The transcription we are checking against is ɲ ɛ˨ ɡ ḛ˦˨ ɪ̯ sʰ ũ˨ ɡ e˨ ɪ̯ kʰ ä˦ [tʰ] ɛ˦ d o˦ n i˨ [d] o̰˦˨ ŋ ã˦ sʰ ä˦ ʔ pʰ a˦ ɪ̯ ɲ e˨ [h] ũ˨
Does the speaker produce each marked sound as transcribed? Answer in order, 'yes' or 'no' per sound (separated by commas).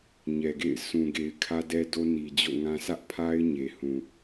no, no, yes